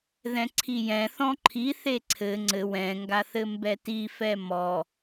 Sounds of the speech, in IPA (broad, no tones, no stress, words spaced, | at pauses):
ðɛ̃ǀʰijɛ̃ θɔ̃ǃʰi θeǀʰɘ ŋ͡ǀɘ wɛ̃ ŋɡaθɘmbɛti fɛmɔ